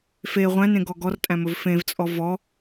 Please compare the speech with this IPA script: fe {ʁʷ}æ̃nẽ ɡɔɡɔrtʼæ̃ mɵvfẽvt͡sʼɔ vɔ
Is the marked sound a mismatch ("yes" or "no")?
no